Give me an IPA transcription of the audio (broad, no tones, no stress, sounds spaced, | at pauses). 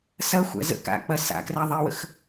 s ɐ xʷ æ̰ z ə̰ k a̰ k͡p ɐ s a̰ k r æ ðˤ i w ə̰ x